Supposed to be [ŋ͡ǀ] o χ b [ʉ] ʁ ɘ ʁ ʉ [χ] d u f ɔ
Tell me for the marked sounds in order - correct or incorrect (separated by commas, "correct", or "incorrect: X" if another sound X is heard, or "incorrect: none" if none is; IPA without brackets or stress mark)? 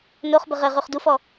incorrect: n, incorrect: ə, correct